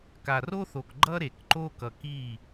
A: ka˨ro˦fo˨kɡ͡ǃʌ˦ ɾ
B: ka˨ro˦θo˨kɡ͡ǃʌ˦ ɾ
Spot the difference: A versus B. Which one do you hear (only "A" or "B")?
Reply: B